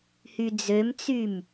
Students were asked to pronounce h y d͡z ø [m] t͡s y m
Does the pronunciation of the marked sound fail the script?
no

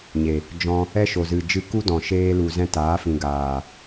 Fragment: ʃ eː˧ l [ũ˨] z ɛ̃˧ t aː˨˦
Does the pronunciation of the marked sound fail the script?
yes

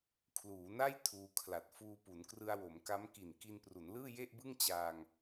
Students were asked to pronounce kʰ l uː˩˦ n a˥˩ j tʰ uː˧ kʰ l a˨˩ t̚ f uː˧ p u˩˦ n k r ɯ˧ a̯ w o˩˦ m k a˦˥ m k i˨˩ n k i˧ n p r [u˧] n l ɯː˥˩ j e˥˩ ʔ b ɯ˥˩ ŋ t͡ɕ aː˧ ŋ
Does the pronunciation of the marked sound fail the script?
yes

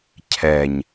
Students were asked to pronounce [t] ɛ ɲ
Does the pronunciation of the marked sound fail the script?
yes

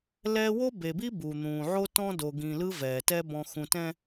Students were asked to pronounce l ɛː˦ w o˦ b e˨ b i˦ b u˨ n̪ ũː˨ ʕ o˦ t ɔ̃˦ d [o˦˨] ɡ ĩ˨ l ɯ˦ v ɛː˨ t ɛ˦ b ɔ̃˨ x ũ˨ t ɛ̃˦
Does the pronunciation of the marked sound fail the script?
yes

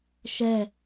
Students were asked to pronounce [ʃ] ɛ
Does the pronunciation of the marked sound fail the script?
no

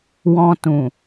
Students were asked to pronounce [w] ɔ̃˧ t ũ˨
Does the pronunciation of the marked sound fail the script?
no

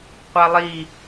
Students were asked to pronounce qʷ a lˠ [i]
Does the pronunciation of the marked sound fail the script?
no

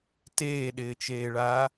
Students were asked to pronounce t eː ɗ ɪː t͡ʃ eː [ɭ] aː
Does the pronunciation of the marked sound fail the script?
no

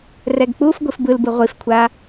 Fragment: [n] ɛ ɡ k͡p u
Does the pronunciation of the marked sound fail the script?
yes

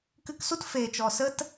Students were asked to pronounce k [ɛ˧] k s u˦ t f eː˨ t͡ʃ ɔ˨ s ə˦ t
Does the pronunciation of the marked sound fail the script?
yes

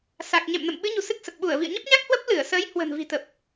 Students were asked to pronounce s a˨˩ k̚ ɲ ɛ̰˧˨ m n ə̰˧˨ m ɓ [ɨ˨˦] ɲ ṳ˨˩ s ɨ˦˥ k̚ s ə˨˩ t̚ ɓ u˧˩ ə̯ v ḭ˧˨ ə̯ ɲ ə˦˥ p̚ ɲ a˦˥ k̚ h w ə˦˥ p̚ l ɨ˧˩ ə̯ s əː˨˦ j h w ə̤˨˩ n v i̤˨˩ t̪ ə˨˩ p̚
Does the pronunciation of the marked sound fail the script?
no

